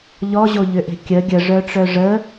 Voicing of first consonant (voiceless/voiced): voiced